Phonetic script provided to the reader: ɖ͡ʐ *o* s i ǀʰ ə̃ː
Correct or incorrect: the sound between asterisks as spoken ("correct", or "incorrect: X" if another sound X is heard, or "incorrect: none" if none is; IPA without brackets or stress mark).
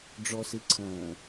incorrect: ɔ